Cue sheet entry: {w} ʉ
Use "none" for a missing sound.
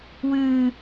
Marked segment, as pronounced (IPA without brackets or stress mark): w